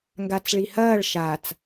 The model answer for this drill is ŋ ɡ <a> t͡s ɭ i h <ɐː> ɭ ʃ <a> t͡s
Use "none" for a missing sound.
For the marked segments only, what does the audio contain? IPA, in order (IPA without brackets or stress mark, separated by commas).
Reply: a, ɐː, a